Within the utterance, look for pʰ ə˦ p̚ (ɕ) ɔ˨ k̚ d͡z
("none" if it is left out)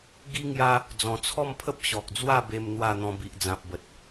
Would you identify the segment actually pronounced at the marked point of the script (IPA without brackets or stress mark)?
ɕ